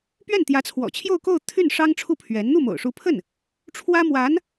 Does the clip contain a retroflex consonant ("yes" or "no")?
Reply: yes